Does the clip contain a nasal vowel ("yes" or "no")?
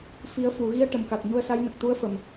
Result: no